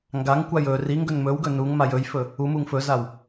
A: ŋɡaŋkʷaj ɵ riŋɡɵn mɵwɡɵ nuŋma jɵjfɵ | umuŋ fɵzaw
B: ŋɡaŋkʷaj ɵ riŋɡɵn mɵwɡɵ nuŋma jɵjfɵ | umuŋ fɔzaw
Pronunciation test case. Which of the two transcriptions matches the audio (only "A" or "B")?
A